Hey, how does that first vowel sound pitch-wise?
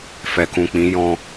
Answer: low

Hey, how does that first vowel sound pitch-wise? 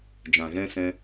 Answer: low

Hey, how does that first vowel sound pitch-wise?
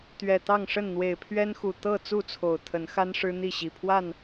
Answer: low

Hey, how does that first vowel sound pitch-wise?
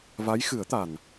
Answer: rising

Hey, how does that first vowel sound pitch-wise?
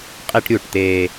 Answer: high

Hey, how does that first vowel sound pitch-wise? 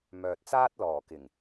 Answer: low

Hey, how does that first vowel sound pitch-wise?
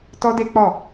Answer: high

